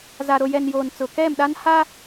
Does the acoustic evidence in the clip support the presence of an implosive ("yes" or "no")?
yes